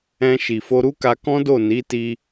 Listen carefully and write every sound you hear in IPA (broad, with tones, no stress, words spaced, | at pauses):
ɛ̃˧ ʃi˨fo˧ɾu˦ka˧ kɔ̃˦do˦˨ ni˨˦ti˧